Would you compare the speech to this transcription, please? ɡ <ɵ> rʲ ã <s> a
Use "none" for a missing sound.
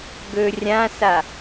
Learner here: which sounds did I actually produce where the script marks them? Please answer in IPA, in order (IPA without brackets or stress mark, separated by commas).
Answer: ɵ, s